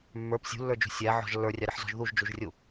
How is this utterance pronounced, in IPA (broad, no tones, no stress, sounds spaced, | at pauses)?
mː ə˞ p sʲ ṳ lː ə˞ d͡ʒ ṳ sʲ æ ʕ ɔ̤ ʒ lː ə˞ rʲ ɑ ɾ ɪ ħ z ɔ̤ ʒ ð u ʒ d͡ʒ u ʒ rʲ u